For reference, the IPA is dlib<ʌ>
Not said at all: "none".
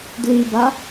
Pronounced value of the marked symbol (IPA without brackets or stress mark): a